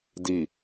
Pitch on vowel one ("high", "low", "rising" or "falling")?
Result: low